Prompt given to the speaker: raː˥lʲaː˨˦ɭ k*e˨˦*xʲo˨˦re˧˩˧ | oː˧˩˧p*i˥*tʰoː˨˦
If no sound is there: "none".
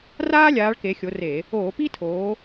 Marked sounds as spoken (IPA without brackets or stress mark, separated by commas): e˨˦, i˥